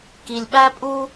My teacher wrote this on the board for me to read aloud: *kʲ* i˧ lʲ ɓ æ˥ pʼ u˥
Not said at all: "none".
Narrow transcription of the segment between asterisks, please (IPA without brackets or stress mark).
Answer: k